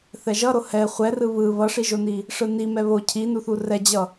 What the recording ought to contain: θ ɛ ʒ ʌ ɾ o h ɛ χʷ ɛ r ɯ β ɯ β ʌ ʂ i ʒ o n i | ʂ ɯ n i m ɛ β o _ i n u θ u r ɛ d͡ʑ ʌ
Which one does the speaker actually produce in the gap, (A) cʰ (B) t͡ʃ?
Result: A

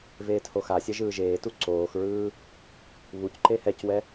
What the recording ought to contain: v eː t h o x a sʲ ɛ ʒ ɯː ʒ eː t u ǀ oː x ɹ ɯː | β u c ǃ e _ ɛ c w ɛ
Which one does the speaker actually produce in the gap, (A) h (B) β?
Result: A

